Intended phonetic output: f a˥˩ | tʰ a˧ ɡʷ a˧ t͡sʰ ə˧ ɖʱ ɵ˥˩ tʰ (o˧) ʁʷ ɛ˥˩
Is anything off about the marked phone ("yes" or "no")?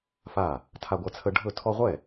yes